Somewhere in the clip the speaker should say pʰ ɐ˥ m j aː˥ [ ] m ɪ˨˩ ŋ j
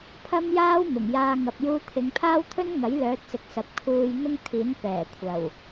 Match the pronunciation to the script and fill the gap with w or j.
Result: w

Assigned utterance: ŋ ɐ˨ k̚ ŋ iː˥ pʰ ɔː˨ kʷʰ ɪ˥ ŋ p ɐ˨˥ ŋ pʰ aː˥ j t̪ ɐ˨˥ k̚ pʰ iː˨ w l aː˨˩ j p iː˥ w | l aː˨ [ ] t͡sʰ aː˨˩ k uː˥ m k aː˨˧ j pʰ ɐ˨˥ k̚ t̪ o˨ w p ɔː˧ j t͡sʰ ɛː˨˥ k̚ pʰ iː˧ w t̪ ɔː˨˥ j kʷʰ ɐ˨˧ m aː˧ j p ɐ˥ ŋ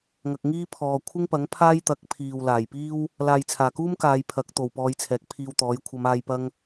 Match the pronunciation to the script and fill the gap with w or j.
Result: j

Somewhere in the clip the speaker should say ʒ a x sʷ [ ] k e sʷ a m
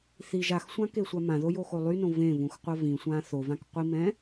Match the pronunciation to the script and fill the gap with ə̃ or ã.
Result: ã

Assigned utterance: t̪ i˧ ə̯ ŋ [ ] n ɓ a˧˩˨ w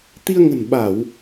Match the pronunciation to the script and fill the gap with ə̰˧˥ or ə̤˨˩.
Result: ə̤˨˩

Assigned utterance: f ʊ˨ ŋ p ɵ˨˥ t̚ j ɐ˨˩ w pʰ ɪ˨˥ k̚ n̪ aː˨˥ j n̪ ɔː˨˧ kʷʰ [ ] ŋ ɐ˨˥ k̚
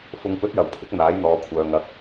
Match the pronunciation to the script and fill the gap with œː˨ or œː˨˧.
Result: œː˨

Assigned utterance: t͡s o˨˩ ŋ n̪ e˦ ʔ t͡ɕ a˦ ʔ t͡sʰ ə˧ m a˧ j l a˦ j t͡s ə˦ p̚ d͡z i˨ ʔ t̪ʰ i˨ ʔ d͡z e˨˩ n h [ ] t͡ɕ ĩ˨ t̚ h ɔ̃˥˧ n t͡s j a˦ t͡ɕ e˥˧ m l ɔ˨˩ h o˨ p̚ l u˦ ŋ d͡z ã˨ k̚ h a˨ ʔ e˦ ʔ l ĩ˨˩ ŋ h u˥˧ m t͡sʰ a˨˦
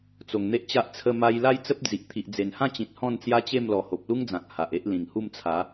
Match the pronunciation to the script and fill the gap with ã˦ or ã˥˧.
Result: ã˥˧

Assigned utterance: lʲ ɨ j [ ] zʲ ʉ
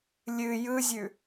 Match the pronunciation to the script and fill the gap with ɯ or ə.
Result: ɯ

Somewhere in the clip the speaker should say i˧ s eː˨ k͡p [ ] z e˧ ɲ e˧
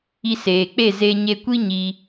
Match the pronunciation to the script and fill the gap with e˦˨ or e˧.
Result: e˦˨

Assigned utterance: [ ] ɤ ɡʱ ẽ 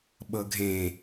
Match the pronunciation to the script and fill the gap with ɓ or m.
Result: ɓ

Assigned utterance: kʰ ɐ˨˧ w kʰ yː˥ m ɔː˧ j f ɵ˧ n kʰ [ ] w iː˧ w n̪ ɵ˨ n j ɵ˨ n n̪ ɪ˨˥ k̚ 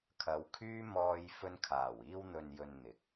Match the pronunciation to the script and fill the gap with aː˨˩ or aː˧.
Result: aː˨˩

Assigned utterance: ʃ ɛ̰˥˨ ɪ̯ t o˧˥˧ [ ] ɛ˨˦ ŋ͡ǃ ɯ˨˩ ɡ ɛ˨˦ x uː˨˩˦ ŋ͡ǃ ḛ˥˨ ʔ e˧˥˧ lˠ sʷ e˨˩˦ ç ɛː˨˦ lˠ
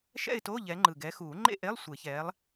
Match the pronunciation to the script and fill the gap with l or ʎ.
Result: ʎ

